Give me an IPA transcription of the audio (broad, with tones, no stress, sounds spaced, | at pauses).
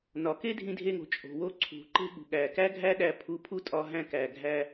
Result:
n ɒ˨ k e˦ dʱ ĩ˧ dʱ e˧ ŋ o̤˨ t͡ʃʼ o̤˨ w o˧ ǀʰ ṳ˨ ǃ e̤˧ ɠ ṳ˨ ɠ æ˨ k æ˦ ɡʱ æ˦ ɗ æ˧ pʰ u˨˦ pʰ u˧ tʼ ɒ˧ ɦ æ̃˧ k æ˨ ɡʱ æ˧